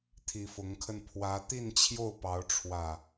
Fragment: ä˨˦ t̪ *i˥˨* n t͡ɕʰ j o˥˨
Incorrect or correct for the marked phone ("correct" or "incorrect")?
correct